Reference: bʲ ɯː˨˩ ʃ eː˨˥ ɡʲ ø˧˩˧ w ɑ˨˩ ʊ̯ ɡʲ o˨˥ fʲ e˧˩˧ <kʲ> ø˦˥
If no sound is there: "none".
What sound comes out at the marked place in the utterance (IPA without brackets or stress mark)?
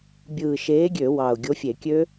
kʲ